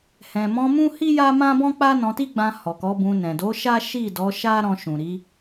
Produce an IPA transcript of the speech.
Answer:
h ɛ̃˨ m ɔ̃˧ m ũ˦ h i˦ j a˦ m ã˦ b ɔ̃˦ k͡p a˦ n ɔ̃˧ t i˦ ɡ͡b ã˧ h ɔ˨ k ɔ˨˦ b ũ˧ n ɛ̃˨ d o˨˦ ʃ a˦ ʃ i˦˨ d ɔ˨˦ ʃ a˦ ɾ ɔ̃˧ ʃ ũ˨ ɾ i˨˦

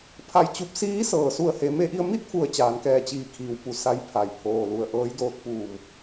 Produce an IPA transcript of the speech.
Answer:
pʰ a˧˩ j t͡ɕ u˧ p̚ s iː˧˥ s ɤː˩ s u˧˩ ə̯ h e˩˧ m e˧ ʔ i˧ ə̯ m i˥˨ t̚ f u˩ ə̯ t͡ɕ aː˩˧ n k ɛː˧˩ t͡ɕ iː˧˩ kʰ iː˩ w p u˧˩ s a˧ j pʰ a˩ j pʰ oː˩ l u˧˩ ə̯ ʔ ɤː˧˥ j d oː˧ t̚ p uː˧˩ m

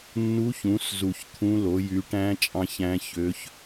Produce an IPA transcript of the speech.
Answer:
nː u˧˥ ç ũ˩˥ s z u˨˩ ç t̪ʰ ũ˧˥ l o˩˥ j y˩˥ ʈ æ̃˧˥ t͡ʃʼ ɑ̃˧˥ ç æ̃˧˥ ç ø˧˥ ç

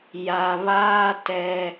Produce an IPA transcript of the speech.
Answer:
j a˨ β aː˦ t ɛ˦

